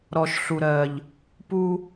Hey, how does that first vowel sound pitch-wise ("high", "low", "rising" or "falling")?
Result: low